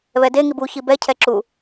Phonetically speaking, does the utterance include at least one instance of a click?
yes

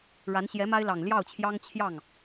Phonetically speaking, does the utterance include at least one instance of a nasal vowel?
no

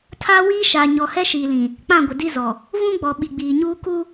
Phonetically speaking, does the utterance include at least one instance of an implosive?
yes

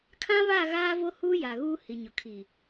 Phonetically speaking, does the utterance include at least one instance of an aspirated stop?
yes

